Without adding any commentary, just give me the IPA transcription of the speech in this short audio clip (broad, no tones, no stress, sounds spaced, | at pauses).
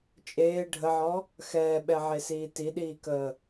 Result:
t͡ʃʼ eː ɖʱ ə ʕ ɔ | x ɛː ɓ ɛ ʕ e s iː t i ɗ iː k əː